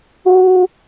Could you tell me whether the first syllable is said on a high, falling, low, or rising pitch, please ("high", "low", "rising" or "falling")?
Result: high